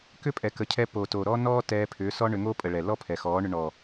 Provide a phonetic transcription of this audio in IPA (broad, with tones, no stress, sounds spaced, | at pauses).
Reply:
k ʏ˦ pʼ ɛ˨ k ə˨ cʰ ɛ˧ p o˨ t o˨ ɾ ɔ˦ n ɔː˦ t ɛː˧ pʰ ʏː˨˦ s ɔ˦ ɳ ʏ˧ ŋ o˦ pʼ ə˨ ɭ ɛ˨ l ɔ˦ pʰ ɛ˨ x ɔː˨˦ ɳ ʏ˧ ɳ ɔ˨